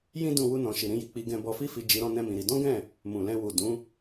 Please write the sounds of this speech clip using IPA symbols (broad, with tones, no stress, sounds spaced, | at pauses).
j ĩ˦ d ũ˦ w u˦ n ɔ̃˧ ʃ i˨ ɾ ĩ˧ j i˨ k͡p i˧ ɡ ɛ̃˧ b ɔ˧ f i˦ f i˧ d͡ʒ i˧ ɾ ɔ̃˦ n ɛ̃˦ m ĩ˧ ɾ i˧ d ɔ̃˦ ɡ ɛ̃˦˨ | m ũ˨ l ɛ̃˧ w u˨ d ũ˨˦